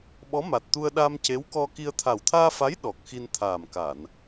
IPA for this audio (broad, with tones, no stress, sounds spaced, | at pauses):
ɓ ɔ˧˥ m a˨˩ t̚ t̪ u˧ ə̯ ɗ a˧ m c e˧˥ w k ɔ˧ k i˧ ə̯ t̪ʰ a˨˩ w t̪ʰ aː˧ f a˧˥ j ɗ ɔ˨˩ k̚ x i˧ n t̪ʰ aː˨˩ m k a˨˩˨ n